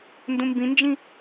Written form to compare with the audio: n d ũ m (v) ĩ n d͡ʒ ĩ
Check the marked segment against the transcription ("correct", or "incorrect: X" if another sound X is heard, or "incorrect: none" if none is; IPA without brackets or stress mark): incorrect: b